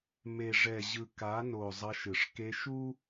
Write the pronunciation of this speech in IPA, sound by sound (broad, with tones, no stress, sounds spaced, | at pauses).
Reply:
m e˨ ʐ ɛ˨ ʑ ɯ˨ k a˨˦ n o˨ zˤ ʌ˧ ʃ ɯ˨ ʂ k e˧ ʃ u˦